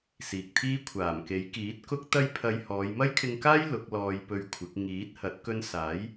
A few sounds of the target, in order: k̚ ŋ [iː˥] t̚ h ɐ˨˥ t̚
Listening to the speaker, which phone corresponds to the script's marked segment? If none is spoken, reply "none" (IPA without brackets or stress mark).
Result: iː˨˥